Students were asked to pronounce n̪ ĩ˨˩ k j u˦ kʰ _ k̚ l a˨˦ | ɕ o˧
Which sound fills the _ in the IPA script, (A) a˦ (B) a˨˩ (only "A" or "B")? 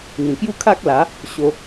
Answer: A